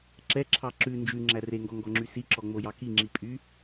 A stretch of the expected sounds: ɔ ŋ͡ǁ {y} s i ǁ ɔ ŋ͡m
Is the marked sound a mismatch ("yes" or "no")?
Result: no